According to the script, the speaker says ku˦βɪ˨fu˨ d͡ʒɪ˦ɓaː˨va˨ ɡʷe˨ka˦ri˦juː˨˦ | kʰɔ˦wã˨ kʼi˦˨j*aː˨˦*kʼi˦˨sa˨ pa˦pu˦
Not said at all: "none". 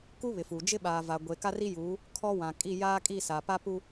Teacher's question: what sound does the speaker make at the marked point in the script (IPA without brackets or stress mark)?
aː˦